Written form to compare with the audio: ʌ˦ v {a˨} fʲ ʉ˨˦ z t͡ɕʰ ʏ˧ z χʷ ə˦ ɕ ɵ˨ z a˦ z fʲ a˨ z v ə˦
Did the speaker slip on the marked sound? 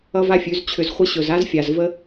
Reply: yes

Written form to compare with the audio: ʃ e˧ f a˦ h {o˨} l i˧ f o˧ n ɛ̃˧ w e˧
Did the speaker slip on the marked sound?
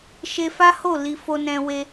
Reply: yes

